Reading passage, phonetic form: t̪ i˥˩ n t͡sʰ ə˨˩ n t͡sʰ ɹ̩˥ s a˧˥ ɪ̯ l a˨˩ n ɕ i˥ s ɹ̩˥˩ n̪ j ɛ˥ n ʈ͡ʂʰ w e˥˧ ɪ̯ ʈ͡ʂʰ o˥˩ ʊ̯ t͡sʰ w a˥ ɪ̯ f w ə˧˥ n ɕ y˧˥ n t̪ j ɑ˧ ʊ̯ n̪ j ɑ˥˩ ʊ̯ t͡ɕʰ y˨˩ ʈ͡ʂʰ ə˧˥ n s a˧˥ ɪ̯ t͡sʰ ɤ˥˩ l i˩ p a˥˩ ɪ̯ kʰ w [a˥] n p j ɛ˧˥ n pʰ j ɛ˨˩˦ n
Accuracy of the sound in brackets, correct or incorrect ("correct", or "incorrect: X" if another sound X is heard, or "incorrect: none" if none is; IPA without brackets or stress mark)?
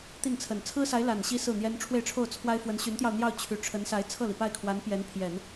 incorrect: a˧˥